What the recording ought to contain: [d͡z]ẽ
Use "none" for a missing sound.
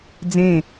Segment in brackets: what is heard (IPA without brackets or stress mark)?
d͡z